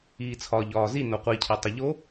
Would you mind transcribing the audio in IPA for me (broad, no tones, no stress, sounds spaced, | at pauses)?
iː t͡sʰ ɒː ʎ ɒː z i n o qʷ i cʰ e tˤ e ʎ o